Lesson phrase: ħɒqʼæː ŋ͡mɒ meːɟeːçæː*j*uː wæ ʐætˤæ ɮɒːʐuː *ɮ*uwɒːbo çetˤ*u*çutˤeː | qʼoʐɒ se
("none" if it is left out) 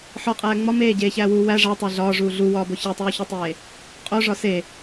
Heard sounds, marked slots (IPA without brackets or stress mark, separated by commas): w, ɮ, uː